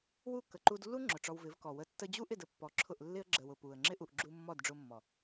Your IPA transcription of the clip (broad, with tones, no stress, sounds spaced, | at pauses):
w u˦˨ k ə˨ ǃ u˧ d lː u˦ ŋ͡ǁ ʊ˨ ʈ͡ʂ ɔ˧ w v ɪ˨˦ v k ɔ˨ w ə˧ tː ə˧ d͡ʑ u˦ ʔ ɪ˦˨ d ə˧ pː ɔ˨ ǁʰ ʊ˦˨ ʔ lː ɪ˦ ə̯ ɡ͡ǁ ə˨ w ʊ˦˨ p u˨ ə̯ ŋ͡ǁ ɪ˦ ʔ u˨ ʔ ɡ͡ǁ u˧ mː ɔ˦˨ d ɖ͡ʐ ʊ˧ mː ɔ˨